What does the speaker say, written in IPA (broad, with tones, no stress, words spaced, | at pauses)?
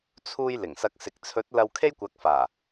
t͡sʰuː˧j lɪ˨˩ŋsɐ˧k̚sɪ˨k̚ t͡sʰɵ˨˥t̚ lɐ˧wkʰe˥jkʷɐ˨˥k̚faː˨˩